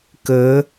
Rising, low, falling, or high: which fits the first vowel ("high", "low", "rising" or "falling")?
rising